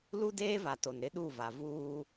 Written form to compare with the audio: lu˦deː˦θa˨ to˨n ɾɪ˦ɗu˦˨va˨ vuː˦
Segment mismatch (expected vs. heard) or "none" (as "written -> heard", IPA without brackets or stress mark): θ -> v